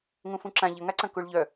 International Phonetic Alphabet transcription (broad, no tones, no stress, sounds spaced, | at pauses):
ŋ ũ f ũ ǁ ã ʎ ə ŋ a ǀ ɐ̃ k u ɭ ʎ œ